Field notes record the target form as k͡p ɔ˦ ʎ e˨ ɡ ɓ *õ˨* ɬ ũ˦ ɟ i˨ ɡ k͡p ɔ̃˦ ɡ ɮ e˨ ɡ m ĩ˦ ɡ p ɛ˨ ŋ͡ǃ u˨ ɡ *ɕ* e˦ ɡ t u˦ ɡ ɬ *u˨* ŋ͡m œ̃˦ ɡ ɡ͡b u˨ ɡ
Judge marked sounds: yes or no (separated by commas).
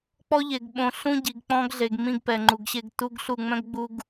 yes, yes, no